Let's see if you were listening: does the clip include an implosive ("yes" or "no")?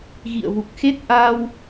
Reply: no